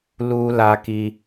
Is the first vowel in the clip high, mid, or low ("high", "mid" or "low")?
high